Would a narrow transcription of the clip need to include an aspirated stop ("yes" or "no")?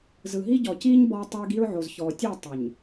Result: no